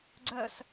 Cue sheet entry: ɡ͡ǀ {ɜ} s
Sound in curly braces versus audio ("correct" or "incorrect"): correct